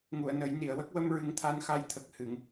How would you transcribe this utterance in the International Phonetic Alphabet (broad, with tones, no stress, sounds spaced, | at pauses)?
ŋ u˨˩˨ ə̯ n ə˨˩˦ j n i˨˩˨ ə̯ w ə˦˥ k̚ w ə˧ m ɹ ɨ˨˩˦ ŋ t̪ʰ a˧ n x a˧ j t̪ʰ ə˨˩ k̚ h ɨ˨˩˨ ŋ